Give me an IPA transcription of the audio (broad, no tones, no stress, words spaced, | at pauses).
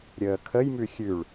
ɾʲəːkʰəjmʉ xʲʉɭ